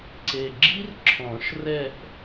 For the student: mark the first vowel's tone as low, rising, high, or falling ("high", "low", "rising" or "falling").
low